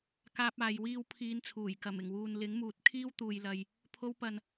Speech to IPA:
kaː˥p̚aː˧jwiː˥w pʰiː˨˧nt͡sʰuː˨˩j kɐ˨˩mɪ˨˩ŋwuː˨n lɪ˨˥ŋmuː˨˥t̚kʰiː˥w t̪uː˨jlɐ˨j | pʰo˧wpɐ˨n

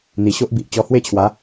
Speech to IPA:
n̪i˨˩ɕo˦ʔbi˨ʔ t͡ɕɔ˧hwe˥˧t͡ɕʰwa˨˦

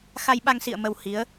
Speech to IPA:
xa˧jɓa˧ŋsḭ˧˨ə̯ mə˧whi˨˦ə̯

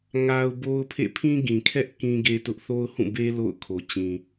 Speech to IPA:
ŋa˦ʊ̯bo˦ʊ̯pʰḛ˦˨ pʰĩ˦ɡĩ˨ kʰɛ˦ʔ kĩ˦ɡe˦tʊ˦ʔ θo˦ʊ̯hũ˦˨be˦ lo̰˦˨ʊ̯kʰo˨t͡ɕĩ˨

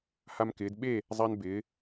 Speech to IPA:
ha˥mkɪː˧˥d ɓe˥˧ | zˤa˥nbɪː˧˥

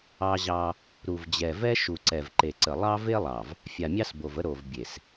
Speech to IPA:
ɑ˦ʑɑ˦ | ɾu˨vd͡ʑɛ˨vɛ˦ ʃu˨ǀɛ˨vǃe˨ǀə˨ lˠɑ˦ve˦lˠɑ˨v | fʲa˨mʲɑ˦sbo˨və˦ ɾo˨vbʲe˨s

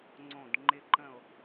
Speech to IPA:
ŋ͡ǀõ˥˨d ŋ͡ǃɪ˦ǃə̃˥˨o̯

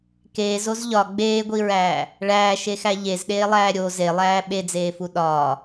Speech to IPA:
keːzoz ʎɒ ɡ͡beːɡʷiɹæː | ɭæːʃexæ ʎezɗeːlˠæː ɾʲo zelˠæː ɓed͡zeːfu ɗɒː

